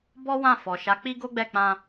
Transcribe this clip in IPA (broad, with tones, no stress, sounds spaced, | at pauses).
b ɔ˦ w ã˦˨ f ɔ˨ ʃ a˨˦ k͡p i˦ ɡ o˦ ɡ͡b ɛ˦˨ k͡p ã˧